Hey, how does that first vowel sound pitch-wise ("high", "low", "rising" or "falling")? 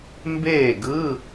falling